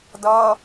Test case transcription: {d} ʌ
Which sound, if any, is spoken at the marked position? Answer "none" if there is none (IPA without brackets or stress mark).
d